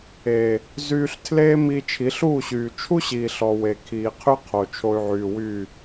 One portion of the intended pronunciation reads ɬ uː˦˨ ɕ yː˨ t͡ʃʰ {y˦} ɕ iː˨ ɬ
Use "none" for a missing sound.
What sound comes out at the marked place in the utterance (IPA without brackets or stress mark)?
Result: u˦